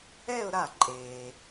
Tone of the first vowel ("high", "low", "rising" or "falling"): falling